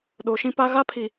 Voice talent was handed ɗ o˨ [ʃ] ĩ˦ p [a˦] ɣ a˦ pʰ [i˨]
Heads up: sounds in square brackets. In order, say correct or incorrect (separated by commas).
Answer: correct, correct, correct